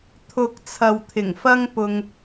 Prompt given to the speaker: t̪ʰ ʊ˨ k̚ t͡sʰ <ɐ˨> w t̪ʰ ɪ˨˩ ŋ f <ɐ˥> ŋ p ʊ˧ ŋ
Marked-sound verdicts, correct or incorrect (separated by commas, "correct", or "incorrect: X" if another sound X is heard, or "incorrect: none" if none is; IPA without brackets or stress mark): correct, correct